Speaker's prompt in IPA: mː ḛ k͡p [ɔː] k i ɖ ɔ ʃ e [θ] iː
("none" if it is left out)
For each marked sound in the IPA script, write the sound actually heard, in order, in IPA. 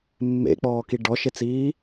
ɔː, t͡s

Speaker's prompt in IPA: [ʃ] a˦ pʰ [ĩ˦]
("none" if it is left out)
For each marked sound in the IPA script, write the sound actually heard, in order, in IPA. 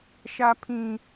ʃ, ĩ˦

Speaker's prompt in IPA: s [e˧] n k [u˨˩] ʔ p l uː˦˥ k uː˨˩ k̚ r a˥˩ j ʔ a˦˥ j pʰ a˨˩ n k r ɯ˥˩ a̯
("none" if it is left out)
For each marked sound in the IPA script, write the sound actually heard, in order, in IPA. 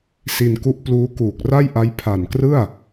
i˧, u˦˥

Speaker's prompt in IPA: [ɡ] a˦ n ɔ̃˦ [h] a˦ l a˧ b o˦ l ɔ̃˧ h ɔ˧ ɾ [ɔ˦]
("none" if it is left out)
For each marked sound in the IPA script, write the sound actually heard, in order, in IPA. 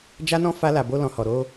d͡ʒ, f, o˦

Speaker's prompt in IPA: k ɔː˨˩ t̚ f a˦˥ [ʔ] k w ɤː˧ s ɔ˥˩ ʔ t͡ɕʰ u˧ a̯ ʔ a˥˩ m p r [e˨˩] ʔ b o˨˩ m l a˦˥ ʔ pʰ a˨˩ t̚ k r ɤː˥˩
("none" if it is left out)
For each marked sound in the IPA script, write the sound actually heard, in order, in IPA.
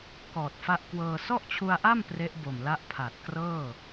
ʔ, e˦˥

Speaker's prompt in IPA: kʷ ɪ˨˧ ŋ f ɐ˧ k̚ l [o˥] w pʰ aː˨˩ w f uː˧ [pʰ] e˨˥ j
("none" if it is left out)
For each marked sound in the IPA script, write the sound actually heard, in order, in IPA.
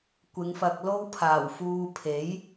o˥, pʰ

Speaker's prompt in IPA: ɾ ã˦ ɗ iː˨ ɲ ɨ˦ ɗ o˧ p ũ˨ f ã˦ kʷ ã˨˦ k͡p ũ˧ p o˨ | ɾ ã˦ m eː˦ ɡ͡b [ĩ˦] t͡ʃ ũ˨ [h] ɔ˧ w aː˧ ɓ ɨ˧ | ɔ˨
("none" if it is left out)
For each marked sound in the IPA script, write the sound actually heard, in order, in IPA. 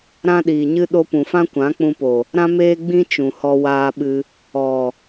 ĩ˦, h

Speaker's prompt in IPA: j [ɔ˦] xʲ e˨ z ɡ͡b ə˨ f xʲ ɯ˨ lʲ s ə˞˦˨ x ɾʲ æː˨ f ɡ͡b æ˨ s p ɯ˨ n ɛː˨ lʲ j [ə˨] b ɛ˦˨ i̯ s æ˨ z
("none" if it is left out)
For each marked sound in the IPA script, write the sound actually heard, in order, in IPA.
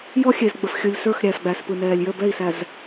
ɔ˦, ə˦˨

